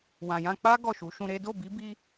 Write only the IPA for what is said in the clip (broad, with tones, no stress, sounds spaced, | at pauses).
w ã˨ j ã˧ k͡p a˦ ɡ ɔ˦˨ ʃ u˨˦ ʃ ũ˧ ɾ e˦ d o˦˨ b i˨˦ b i˦